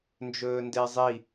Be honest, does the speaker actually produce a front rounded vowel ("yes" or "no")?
no